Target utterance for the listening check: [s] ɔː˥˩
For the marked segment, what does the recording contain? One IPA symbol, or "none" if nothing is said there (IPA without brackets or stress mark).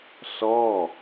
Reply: s